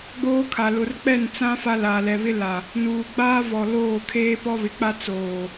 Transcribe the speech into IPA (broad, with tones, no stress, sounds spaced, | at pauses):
ɡ͡b oː˦ kʰ a˨ l ʊ˨ r k͡p ɛ˦˨ n t͡s ã˦ f a˦ l aː˨ l ɛ˨ β ɪ˦ l a˨ | n uː˨ ɡ͡b aː˦ v ɔ˨ l oː˦˨ kʰ eː˦ p ɔ˦ β ɪ˨ k͡p a˦ t͡s oː˨